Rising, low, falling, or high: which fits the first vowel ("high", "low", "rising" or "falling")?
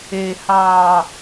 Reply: low